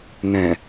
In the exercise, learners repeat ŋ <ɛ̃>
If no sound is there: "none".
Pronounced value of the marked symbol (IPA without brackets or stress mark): ɛ̃